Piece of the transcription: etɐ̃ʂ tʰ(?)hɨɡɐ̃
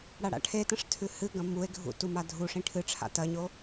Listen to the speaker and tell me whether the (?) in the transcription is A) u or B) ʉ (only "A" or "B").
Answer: B